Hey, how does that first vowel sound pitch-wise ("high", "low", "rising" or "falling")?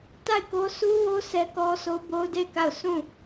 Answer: falling